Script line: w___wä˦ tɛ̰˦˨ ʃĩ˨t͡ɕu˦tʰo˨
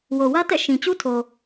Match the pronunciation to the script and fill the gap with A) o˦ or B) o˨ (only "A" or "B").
B